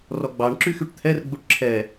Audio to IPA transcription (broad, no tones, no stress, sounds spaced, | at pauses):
r ɔ ɡ͡b ɑ ɳ ǁ y x y ʈ t̪ʰ ɛ r ɡ͡b u ʈ ǁʰ ɛ